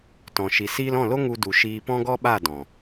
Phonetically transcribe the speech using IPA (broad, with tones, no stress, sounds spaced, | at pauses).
t ɔ̃˨ ʃ i˨ s iː˧ l ɔ̃˦˨ l o˦ ŋ u˧ d u˨ ʃ iː˧ p ɔ̃˦ ɡ ɔ˦ ɓ a˦˨ d ɔ̃˨